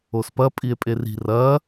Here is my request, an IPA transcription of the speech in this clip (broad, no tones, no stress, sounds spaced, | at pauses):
o s p ɐ pʼ i e̯ pʼ e r i̤ r ɐː